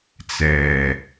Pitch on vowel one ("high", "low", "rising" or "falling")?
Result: low